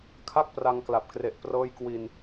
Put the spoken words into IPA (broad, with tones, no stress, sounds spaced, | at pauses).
kʰ a˥˩ k̚ p r a˧ ŋ k l a˨˩ p̚ k r e˨˩ ʔ p r ɤː˦˥ j k w i˧ n